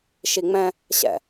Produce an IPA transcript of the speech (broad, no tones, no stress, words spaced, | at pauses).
ʃiŋ͡mɛ̃ | ɕɛ̰